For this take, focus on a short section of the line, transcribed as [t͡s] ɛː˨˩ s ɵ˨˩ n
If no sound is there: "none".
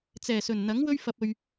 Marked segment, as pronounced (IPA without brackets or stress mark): t͡s